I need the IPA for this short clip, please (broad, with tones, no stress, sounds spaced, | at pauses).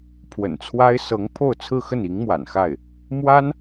pʰ w ə̰˨˩ n t͡sʰ w a˥ ɪ̯ s ɤ˧˥ ŋ pʰ o˥˧ ʊ̯ t͡sʰ ɹ̩˥˧ x ə˥˩ n i˧˥ ŋ m w a̰˨˩ n x a˥˩ ɪ̯ | m w a˥ n